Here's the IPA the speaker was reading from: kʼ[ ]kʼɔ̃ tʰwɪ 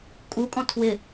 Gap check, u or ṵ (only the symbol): u